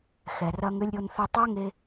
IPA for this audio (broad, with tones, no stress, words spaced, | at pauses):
xɛ˨rɐ˧ŋ ʏ˧lʲɾʲo˧nθʏ˧ tˤɜ˦ŋe˧